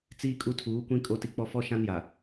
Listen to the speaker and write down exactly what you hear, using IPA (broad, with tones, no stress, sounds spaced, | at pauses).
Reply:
t͡s iː˦ kʼ u˦ tʰ uː˨˦ kʷ ĩ˦ kʼ o˦ t i˦ k͡p ɔ˦ f ɔ˦ ʃ ã˦ n j a˨